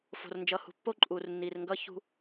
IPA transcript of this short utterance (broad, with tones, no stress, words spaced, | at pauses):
fo̤˨rnd͡ʒʌ˨hṳ˨ pːo˦ǃʼuː˨rnːiː˨rŋɡʌː˦ çṳ˦